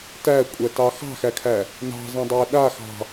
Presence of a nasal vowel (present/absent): present